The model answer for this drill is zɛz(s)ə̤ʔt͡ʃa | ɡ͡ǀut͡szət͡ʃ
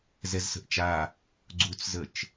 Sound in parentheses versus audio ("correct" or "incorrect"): correct